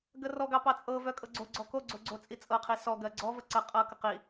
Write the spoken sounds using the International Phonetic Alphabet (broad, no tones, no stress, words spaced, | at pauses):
ɡərɔɡɑ pɑt͡sʼɤvœ kʼɤɡ͡ǀoɡ͡ǀɔ koɡ͡ǀo ɡ͡ǀot͡sʼit͡sʼɤqʰi sɔɡɜ ɡ͡ǀɔvə ǀə qʼɤkə qi